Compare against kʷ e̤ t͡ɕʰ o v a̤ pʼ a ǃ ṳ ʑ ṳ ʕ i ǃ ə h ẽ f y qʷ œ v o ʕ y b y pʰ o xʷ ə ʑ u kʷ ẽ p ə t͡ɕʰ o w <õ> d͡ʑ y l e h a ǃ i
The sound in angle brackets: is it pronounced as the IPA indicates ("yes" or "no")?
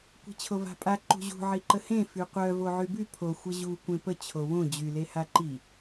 yes